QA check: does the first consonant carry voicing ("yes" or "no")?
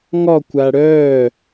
yes